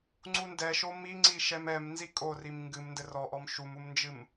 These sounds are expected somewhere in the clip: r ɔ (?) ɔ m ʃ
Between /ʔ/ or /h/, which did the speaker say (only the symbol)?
ʔ